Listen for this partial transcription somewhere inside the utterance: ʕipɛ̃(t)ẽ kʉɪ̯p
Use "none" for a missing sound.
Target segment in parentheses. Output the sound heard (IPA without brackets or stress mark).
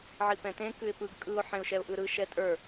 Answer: t